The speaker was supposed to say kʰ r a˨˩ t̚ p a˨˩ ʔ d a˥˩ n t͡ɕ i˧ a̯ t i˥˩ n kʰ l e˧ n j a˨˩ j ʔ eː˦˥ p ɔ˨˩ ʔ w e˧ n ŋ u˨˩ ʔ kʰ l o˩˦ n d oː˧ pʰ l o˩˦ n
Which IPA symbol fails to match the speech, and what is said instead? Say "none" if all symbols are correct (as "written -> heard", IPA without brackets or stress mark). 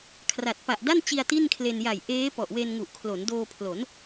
none